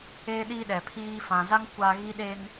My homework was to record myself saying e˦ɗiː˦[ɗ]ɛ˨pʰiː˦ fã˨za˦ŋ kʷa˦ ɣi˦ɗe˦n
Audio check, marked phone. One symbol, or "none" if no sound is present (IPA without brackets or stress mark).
ɗ